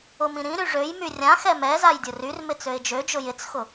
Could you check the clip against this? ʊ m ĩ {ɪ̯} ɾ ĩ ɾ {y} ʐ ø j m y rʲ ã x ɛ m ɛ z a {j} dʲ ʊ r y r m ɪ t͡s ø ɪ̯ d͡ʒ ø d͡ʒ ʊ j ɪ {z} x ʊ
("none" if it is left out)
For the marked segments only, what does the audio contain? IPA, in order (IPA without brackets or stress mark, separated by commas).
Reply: none, y, j, t͡s